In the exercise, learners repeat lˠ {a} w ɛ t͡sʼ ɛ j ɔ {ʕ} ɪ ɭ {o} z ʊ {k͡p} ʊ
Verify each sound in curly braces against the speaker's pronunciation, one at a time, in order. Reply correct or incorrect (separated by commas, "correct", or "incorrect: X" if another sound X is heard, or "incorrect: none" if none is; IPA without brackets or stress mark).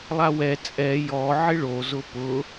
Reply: correct, correct, correct, incorrect: p